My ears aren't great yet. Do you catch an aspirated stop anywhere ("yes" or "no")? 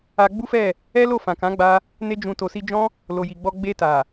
no